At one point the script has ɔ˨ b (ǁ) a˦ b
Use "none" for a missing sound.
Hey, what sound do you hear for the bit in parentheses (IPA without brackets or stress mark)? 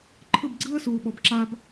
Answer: ǁ